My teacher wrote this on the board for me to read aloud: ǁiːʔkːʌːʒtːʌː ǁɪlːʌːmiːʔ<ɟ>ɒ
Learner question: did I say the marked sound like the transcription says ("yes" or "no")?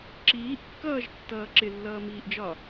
no